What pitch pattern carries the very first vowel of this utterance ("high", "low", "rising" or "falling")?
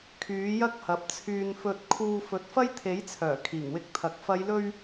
rising